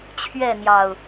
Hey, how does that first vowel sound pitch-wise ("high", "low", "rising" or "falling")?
falling